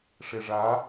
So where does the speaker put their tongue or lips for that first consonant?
retroflex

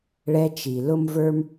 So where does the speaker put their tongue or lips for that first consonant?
retroflex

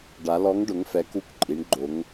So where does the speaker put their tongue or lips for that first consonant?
retroflex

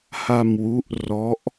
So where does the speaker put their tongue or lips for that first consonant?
throat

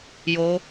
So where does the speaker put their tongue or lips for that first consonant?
palate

